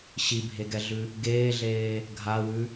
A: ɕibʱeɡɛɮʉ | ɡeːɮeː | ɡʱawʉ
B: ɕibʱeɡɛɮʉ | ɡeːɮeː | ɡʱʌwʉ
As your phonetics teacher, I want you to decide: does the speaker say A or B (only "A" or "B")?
A